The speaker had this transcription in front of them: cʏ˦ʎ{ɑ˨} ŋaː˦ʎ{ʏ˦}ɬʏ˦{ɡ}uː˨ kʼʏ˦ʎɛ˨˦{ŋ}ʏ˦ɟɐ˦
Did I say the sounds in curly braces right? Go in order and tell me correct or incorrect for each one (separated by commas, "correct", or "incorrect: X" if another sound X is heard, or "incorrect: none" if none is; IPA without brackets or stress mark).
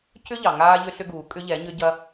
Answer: correct, correct, correct, incorrect: ɲ